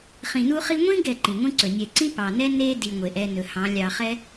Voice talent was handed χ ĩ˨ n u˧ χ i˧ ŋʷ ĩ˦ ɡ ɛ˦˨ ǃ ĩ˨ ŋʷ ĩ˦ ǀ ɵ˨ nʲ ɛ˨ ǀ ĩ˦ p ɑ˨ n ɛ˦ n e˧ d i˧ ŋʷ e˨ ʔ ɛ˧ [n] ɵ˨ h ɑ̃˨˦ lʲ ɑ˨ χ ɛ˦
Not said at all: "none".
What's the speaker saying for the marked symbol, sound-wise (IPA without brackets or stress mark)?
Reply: n